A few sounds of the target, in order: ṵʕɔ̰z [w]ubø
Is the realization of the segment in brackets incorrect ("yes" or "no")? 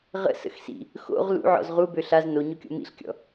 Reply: yes